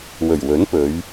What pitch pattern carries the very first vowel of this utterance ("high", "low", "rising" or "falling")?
low